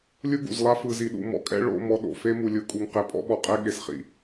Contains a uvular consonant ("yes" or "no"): yes